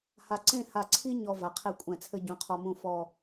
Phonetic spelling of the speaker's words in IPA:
h a˧ ǀ ẽ˥˧ h a˧˩ ǀʰ i˥ ɲ ɔ˧ v a˩˧ qʰ e˥˧ kʷʼ ɛ̃˧˩ t͡sʰ ɘ˥ ɟ ũ˩˧ qʰ ɔ˧ m ũ˥˧ f ɔ˥˧

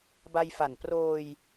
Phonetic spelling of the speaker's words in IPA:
b a˧ j f a˨˩ n p r oː˧ j

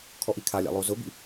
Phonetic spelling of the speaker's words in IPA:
kʰ ɔ ʔ i kʰ a lʲ a̰ lˠ o z ʊ b ḭ

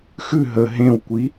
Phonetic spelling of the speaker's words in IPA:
x ʉ ɦ ə ɦ ẽ w kʷ i

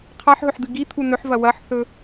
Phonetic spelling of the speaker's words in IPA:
qʰ a ħ ɦ ɵ ħ d̪ ɨ ɡ i t̪ʰ u n ɵ ħ v ɐ w ɐ ħ θ ɵ

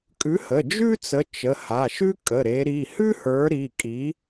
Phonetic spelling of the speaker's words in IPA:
kʼ ʉ˨˦ h ə˩˧˩ d͡ʒ ʉ˥ t͡s ə˨˦ t͡ʃ ə˩˧˩ h a˩˧˩ ʃ ʉ˥ kʼ ə˩˧˩ ɾ e˨˦ ɾ i˩˧˩ h ʉ˥ h ə˞˨˦ ɾ i˩˧˩ kʼ i˨˦

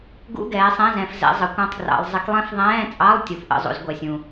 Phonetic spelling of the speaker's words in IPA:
ɡ ṵ˧˥˧ ɡ ɛː˨˦ sˤ ɛ̃˧˥˧ z ɛ̃˨ f z ɛ̰˨˦ zˤ ə˨ kʷ ɑ̃˦˥ tˤ ɡ r ɑ̰˨˦ lˠ zˤ ɪ˨˦ k lˠ ɛ̃˦˥ f ðˤ ɛ̃ː˧˥˧ t͡sʼ ɑ˧˥˧ lˠ tʲ u˨˦ f ʔ ə̰˧˥˧ zˤ ṵ˨˦ z ɡʷ ɛ˨ sʲ ũ˨

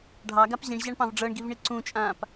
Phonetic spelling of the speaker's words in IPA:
ɖʱ ɑ ɡ a p ʑ ĩ ɳ ʑ a ɳ p ɑ̃ v ɖ͡ʐ ɤ ɳ ɡ i v ɳ i ǀ ũ t͡ʃʼ ãː p

